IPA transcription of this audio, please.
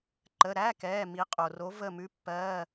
ǃ ə˩˧˩ ɾ æ˧˥˧ k ɛː˩˧˩ m i˨˦ qʼ o˩ r o˨˦ v ə˧˩ m ʉ˧˥˧ pː ɜː˧˥˧

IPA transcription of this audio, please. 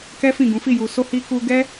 k ɛ˦ f ĩ˦˨ ɡ ũ˨˦ f i˦˨ j u˨ s o˧ h i˧ k u˧ ɡ ɛ˦

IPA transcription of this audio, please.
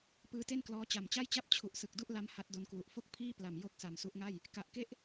p ɯː˦˥ t e˥˩ n k l ɔː˦˥ t͡ɕ a˨˩ m t͡ɕ a˥˩ j t͡ɕ a˥˩ p̚ t͡ɕʰ u˨˩ ʔ s ɯ˨˩ k̚ d u˥˩ ʔ l a˦˥ m h a˦˥ t̚ d o˧ n k w u˨˩ ʔ f o˥˩ k̚ pʰ iː˥˩ p l a˨˩ m j o˥˩ k̚ s a˨˩ m s u˦˥ ʔ ŋ a˥˩ j | k a˨˩ ʔ k e˦˥ ʔ

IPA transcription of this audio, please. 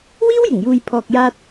w iː˥ w j ɪ˨˩ ŋ j uː˨ j pʰ ɔː˨ k̚ j aː˧ t̚

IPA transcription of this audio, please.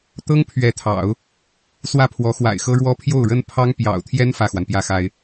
t̪ ɤ˥ ŋ pʰ ɥ ɛ˧˥ t̪ʰ ɑ̰˨˩˦ ʊ̯ | s w ä˥˩ pʰ w ɔ˧˥ x w a̰˨˩ ɪ̯ x ɤ˥ ɻ w ɔ˥ pʰ j o˥˩ ʊ̯ ɻ ə˥ n pʰ ɑ˥ ŋ p j ɑ̰˨˩ ʊ̯ t̪ʰ j ɛ˥ n f ä˥˩ x w a˩ n p j ä˥˩ x a˥ ɪ̯

